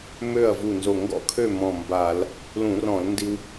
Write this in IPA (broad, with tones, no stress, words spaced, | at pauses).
mø˥˨ɐ̯vu˧˩nzo˧˩ ŋɡɔ̰˥˨kʰø˥˨ mɔ̃˧˩mba˧˩˧l | lũ˧˩˧rɔ̃˧˩˧lndi˧w